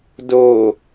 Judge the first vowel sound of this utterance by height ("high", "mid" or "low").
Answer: mid